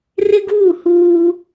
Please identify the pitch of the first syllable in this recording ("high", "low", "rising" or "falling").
high